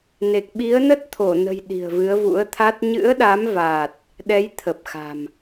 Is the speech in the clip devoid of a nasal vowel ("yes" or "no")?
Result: yes